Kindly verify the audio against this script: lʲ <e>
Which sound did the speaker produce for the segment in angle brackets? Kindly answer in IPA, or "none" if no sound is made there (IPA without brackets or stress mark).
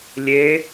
e